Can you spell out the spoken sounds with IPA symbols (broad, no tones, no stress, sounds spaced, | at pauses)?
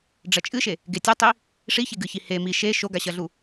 ɖ͡ʐ ɐ t͡ʃʼ ɨ ʃ e | ɡ e tʲ ɐ tˤ i | ʂ i ç e ɡ ɨ ç i h e m i ʃ e ʃ o ɡ a ɕ ɐ ɮ u